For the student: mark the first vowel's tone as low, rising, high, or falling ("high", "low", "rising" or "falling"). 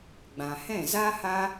low